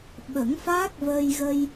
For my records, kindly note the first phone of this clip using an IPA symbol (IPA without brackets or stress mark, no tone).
ɓ